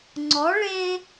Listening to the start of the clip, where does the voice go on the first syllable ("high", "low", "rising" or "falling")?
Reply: rising